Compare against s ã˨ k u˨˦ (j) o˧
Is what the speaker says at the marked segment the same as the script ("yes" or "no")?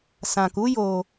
yes